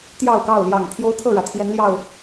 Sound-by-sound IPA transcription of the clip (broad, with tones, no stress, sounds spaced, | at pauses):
t̪ j ɑ˥˨ ʊ̯ k ɑ˥˨ ʊ̯ l j ɑ˨˩ ŋ t̪ʰ j o˦ ʊ̯ t̪ʰ ɤ˥˨ ɻ ä˩ t̪ʰ j ɛ˨˦ n l j ɑ˥˨ ʊ̯